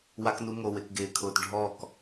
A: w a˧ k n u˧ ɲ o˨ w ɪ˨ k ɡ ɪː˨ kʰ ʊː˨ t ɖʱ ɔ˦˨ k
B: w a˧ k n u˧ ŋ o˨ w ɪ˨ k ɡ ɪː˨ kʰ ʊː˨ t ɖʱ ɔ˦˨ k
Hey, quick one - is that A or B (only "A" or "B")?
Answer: B